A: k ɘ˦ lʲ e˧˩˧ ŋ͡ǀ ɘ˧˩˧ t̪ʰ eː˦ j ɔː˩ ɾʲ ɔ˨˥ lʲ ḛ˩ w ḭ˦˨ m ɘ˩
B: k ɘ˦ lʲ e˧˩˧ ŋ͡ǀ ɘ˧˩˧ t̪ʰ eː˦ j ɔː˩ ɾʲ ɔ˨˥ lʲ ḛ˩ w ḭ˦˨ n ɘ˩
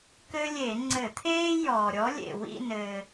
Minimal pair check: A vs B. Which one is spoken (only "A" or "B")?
B